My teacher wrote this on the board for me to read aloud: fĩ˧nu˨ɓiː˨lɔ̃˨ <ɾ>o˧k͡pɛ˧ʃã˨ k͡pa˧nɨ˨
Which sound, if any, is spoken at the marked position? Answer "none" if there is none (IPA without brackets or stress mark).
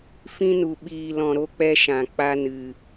ɾ